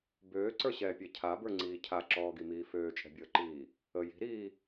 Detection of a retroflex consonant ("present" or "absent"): absent